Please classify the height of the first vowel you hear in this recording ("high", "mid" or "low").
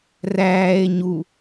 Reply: low